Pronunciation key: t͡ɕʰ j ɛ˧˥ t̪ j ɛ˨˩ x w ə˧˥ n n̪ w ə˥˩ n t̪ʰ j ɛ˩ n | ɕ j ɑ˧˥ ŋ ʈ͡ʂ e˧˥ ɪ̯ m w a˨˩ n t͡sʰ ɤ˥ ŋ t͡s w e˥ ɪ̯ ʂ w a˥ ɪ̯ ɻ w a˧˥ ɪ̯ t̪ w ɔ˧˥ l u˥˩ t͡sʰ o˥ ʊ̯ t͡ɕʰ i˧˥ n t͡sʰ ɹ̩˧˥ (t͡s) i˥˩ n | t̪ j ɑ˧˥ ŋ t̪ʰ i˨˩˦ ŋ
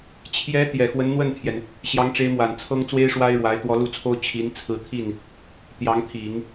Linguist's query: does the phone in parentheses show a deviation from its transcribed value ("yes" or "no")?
yes